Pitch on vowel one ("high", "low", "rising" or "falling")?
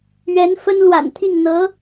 rising